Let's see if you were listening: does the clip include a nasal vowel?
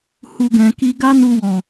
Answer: yes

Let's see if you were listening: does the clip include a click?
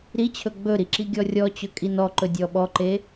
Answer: yes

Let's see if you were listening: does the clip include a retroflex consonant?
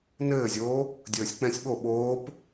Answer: no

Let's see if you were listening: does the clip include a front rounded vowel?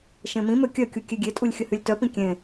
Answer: yes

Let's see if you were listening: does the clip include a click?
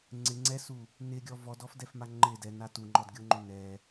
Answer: yes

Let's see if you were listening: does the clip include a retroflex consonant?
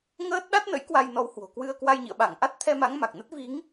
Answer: no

